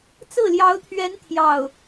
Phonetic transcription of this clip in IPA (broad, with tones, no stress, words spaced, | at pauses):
t͡sɹ̩˥˩ljɑ˧˥ʊ̯t̪ʰɥɛ˧˥n t̪ʰjɑ˥˩ʊ̯